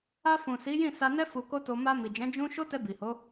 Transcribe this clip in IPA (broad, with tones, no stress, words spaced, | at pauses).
a˧fũ˨ si˨˦jĩ˦˨sa˧nɛ˦ fu˧ko˦to˧ ma˧mi˨d͡ʒɛ̃˨˦ d͡ʒũ˦ ʃo˦tɛ˧ bi˨ho˨˦